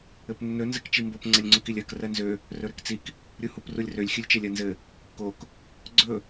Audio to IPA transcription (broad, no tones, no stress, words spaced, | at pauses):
ɘpnːɵ nzɘkt͡ʃimbop ŋ͡ǀɘlʲŋ͡ǀukilʲɜk rɜnzø | rɵɾøkt͡sik | ɾʲuhuprulʲrølʲ xʲɵlʲt͡ʃɜlʲɜnzɘ | kok | ɡ͡ǀɵ